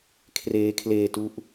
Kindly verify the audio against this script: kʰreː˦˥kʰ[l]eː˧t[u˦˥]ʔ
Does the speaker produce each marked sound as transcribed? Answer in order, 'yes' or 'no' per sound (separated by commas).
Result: yes, yes